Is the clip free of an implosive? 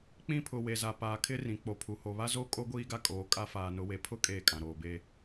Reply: yes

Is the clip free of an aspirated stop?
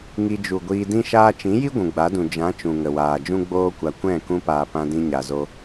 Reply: yes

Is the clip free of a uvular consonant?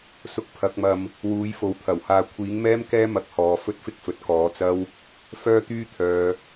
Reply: yes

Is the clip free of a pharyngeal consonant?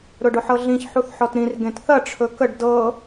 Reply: no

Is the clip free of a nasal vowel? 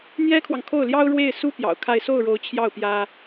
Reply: yes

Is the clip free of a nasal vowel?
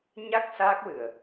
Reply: yes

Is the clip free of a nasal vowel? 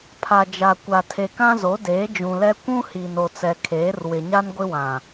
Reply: no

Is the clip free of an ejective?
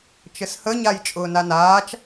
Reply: no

